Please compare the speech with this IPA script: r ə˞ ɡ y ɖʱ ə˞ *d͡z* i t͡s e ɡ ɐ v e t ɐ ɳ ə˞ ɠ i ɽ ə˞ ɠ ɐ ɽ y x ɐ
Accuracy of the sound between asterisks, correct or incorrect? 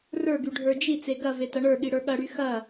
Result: incorrect: d͡ʒ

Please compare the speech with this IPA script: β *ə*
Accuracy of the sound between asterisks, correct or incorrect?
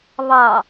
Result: incorrect: ɑ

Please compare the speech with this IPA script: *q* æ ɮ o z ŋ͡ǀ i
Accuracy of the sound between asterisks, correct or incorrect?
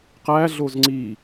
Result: correct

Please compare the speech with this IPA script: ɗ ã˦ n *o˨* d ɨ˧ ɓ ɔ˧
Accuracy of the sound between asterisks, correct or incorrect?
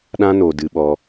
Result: correct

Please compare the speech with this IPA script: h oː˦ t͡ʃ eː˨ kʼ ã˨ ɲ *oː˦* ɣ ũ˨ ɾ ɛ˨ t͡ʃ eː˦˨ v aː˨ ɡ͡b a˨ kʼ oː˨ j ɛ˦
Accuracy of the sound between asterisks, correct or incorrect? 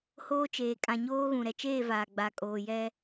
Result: correct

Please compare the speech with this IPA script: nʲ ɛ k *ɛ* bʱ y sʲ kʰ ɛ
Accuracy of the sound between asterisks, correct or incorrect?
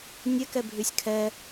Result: correct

